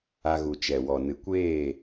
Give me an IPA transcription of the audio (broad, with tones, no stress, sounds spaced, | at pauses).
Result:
a˧ ɣ u˨ t͡ʃ ɛ˨ w ɔ˨ n ɨ˨ kʷ eː˦˨